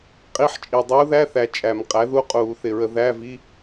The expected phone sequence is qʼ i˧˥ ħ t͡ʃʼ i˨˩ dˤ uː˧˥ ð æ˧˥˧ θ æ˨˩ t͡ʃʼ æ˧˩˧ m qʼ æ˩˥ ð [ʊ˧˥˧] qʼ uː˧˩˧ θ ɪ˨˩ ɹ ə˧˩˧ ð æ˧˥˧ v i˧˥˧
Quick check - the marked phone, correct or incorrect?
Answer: incorrect: u˧˥˧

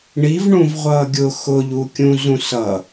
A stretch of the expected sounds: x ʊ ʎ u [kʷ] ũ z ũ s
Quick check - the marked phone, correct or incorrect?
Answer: incorrect: kʲ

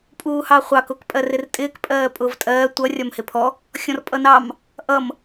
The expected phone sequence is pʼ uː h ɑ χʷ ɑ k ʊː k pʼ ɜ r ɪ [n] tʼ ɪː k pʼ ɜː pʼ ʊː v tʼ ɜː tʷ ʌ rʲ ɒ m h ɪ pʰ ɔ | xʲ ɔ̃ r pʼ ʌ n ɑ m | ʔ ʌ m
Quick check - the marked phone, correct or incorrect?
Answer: incorrect: r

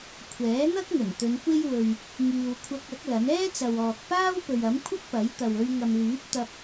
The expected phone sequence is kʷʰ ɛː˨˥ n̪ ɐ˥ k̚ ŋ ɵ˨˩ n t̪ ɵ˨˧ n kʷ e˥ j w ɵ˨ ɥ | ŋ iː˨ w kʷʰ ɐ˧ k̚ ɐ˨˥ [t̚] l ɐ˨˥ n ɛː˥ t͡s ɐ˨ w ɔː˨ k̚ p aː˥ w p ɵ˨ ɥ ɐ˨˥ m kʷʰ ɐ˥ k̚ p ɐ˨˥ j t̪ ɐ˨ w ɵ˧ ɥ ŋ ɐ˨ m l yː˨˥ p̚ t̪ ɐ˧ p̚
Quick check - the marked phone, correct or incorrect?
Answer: incorrect: k̚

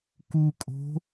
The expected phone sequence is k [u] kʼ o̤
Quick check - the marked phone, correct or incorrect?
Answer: correct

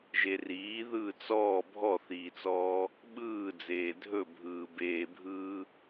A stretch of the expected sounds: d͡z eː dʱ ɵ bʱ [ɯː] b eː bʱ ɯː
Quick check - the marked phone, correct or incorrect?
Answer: correct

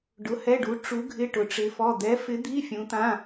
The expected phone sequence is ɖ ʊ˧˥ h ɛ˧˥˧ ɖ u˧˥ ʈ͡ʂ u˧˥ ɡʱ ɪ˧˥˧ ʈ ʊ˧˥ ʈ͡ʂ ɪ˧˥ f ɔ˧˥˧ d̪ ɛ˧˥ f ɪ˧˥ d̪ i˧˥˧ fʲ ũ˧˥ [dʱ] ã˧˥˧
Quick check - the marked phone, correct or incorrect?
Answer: incorrect: t̪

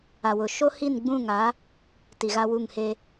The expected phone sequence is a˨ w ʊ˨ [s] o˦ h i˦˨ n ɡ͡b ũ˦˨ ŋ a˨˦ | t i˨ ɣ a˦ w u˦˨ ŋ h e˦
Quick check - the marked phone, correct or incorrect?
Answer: incorrect: ʃ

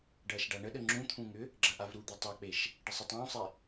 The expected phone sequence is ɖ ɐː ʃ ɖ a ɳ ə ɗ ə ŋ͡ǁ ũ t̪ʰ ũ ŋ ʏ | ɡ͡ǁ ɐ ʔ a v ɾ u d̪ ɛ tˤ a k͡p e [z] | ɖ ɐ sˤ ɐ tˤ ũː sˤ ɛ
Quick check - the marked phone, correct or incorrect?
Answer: incorrect: ʃ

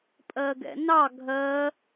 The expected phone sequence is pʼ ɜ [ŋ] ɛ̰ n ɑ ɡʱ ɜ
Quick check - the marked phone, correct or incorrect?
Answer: incorrect: ɡ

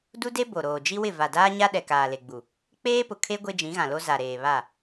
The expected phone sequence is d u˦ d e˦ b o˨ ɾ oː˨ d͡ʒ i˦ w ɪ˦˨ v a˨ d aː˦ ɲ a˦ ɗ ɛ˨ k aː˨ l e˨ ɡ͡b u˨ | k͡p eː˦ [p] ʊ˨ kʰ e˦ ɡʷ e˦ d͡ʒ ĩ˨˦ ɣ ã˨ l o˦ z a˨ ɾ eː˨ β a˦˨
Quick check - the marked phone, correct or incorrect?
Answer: correct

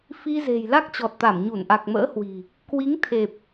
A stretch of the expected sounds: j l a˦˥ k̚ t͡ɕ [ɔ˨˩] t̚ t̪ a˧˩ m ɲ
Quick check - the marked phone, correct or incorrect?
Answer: correct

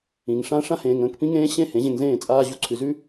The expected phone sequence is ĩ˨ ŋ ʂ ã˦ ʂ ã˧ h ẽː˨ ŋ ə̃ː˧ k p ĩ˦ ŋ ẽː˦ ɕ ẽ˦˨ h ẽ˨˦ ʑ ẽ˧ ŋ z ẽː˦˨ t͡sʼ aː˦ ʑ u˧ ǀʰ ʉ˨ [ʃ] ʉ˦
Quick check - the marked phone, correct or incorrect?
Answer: incorrect: z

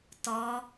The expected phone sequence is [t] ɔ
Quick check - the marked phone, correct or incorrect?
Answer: correct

